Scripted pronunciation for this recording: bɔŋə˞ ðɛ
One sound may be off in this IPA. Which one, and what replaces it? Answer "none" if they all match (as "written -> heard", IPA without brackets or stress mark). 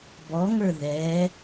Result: none